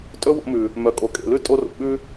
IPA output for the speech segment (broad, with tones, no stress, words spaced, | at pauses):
tʼɵ˦wo̰˧mʉ˨ | mœ˨kʼo˨kʼḛ˨lʉ˦ tʼo˦ro̰˨ ɓʉ˦